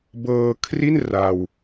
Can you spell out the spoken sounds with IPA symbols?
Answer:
bɤː˧kʰri˥˩n ra˧w

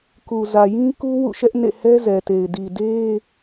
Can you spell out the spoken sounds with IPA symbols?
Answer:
ku˨ zä˨jĩ˦ku˦ wṵ˦˨ʃɛ˦ʔnḛ˦˨ hɛ˦zɛ˨te˨ɪ̯ di˨ de˦

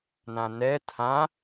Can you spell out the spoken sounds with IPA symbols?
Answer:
nãnɛ tʰã

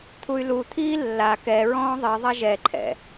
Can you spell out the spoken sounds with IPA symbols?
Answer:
t̪ʰuy̯lut̪ʰiː lːa kɛ ɹɔ̃ːðˤiðˤa ʒɛǃʰɛ̰

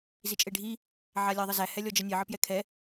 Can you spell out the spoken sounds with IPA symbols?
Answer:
zit͡ʃʼeɖʱi | ʕalʲæðˤəzæ hɛlʲɔd͡ʒənʲe ʕəpjɛkʰɛ

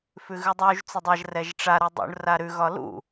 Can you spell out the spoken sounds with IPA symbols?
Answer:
fʉɣʉdˤuʒ t͡sʏdˤaʒ rɛʒʈ͡ʂa ɾudˤṵɳ raɾʉ ɣɒlṵ

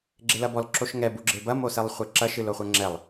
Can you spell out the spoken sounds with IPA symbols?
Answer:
ɡ͡ǁelɐbɔl ǁoʃŋɛ buɡ͡ǁebɐ mosɛlˠχʷɛǁɐ ʃɨloχʷɛŋ͡ǁɛlˠ

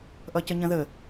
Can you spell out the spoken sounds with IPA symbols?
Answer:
ʔʌcəɲə̃ðə

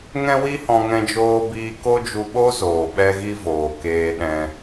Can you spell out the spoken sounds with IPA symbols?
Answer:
ŋɛ̃˦wi˦hɔ̃˧ ŋɛ̃˦d͡ʒoː˦biː˦ ko˦d͡ʒu˧ɓo˦ zoː˨ɓɛ˦ɣi˦voː˨ keː˧ɗɛ̃˧

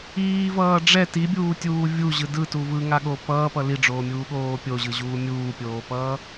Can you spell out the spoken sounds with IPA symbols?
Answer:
iːvʌː ɖ͡ʐɛ tibʲuːtʲuː vʲuʑɯ dɯtu vɯŋaɠo pʌːpʌ liɖ͡ʐoːmʲuːɠoː pʲoʑɯʑuː mʲuːpʲoːpʌː

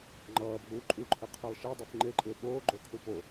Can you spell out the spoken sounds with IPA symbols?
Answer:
ŋ͡ǃʌːbʱuː ǃʼuǃʰɪ qʰelˠʃe dˤifŋ͡ǃeǃʼɪː ɓoːɡ͡ǃokʰu po

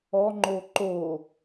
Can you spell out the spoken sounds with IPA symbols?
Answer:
ɔŋ͡ǃo ǃo

